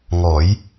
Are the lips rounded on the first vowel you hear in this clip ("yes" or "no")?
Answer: yes